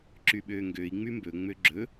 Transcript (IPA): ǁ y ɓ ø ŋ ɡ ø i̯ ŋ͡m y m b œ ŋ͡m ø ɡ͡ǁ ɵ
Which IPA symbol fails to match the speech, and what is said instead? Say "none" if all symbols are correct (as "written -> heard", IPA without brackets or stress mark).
œ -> ɵ